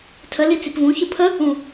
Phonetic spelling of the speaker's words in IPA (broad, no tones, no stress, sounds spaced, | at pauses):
tʰ ə l i t͡s i p v ũ ç ɯ pʰ ə | ũ